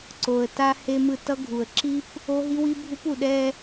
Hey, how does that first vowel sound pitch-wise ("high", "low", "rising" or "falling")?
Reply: low